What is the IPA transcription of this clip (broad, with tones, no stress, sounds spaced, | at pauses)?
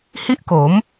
h i˥˩ ʔ k o˩˦ m